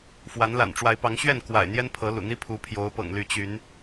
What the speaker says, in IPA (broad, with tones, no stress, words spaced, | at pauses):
fwa˨˦nla̰˨˩nʈ͡ʂwa˨˦ɪ̯pɑ˨˦ŋ ɕɥɛ˥˨nkwa̰˨˩ɪ̯ n̪jɛ˦n pʰɤ˨˦lṵ˨˩n̪i˦ pʰu˨˦pʰjo˨˦ʊ̯pɤ̰˨˩ŋly˨˦ t͡ɕy˨˦n